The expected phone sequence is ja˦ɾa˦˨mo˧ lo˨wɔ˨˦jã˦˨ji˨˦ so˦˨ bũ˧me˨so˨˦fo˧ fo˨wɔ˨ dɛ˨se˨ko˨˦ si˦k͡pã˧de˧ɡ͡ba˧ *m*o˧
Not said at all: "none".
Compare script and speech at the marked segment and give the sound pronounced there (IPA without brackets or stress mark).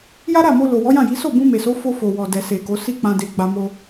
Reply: m